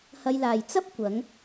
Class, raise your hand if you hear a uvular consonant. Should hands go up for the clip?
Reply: no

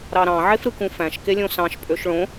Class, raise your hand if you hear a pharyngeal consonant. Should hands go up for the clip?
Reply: yes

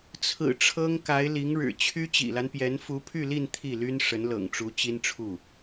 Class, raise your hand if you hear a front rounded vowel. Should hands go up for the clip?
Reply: yes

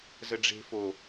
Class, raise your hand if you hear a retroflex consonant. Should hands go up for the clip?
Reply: yes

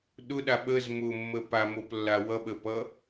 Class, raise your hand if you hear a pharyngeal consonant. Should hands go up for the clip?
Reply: no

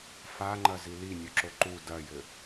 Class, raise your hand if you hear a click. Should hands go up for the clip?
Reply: yes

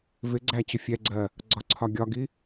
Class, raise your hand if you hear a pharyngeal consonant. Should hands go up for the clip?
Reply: no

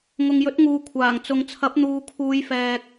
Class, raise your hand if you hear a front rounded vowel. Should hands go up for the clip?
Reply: no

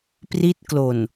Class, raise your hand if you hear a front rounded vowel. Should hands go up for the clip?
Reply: no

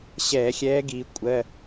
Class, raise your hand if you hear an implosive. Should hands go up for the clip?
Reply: no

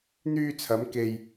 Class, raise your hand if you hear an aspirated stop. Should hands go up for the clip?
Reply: yes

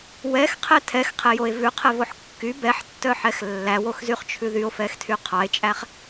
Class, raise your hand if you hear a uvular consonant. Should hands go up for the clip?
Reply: yes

